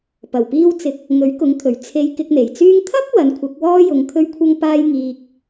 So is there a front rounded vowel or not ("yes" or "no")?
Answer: yes